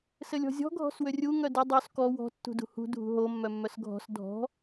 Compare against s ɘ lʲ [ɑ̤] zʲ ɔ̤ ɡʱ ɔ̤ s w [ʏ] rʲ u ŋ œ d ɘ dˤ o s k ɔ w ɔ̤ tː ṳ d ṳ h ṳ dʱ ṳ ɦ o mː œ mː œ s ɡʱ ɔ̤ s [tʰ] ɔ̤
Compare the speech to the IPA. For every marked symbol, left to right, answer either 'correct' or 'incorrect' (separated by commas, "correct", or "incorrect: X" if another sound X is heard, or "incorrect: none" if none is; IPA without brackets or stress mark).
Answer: incorrect: ɔ̤, correct, incorrect: dʱ